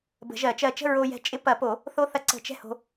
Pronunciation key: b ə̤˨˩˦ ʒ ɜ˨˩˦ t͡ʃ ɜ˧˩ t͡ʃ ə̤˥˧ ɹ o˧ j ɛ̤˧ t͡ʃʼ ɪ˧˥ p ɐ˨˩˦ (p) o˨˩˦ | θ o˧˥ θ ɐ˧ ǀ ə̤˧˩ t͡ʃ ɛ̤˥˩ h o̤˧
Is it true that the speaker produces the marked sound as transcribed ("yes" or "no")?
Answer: yes